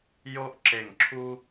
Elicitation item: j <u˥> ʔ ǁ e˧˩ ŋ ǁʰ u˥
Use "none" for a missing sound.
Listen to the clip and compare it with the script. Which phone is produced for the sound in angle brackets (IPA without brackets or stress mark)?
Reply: o˥